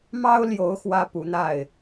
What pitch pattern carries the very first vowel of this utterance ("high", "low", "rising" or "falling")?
high